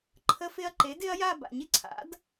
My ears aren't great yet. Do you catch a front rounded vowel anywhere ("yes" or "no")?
no